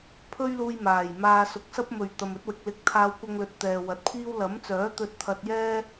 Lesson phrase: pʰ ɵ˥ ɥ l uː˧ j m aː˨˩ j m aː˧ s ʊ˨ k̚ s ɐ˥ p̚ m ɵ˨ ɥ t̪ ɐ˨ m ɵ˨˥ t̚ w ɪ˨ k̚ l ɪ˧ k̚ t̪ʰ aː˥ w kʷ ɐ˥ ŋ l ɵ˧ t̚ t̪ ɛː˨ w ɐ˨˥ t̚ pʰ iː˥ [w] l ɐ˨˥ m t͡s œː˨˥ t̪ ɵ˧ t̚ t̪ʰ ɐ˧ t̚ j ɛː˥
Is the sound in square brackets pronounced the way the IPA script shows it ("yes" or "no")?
yes